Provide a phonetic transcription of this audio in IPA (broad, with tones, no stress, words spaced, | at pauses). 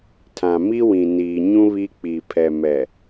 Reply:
tʰã˨ mi˦wĩ˨niː˨ɲũ˦ βi˦k͡pi˨ pʰɛ˨mɛ˨